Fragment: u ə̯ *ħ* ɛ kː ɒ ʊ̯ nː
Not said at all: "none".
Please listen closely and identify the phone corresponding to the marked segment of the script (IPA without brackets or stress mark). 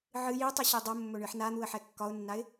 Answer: ħ